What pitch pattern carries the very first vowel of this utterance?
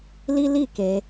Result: high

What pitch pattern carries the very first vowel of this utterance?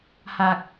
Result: low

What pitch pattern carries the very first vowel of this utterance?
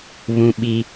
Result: high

